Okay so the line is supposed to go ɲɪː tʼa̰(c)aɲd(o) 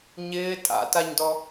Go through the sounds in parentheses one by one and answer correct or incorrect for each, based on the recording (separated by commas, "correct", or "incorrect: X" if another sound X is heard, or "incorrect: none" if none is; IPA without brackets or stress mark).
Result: incorrect: t, incorrect: ɔ